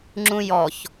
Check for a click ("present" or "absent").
present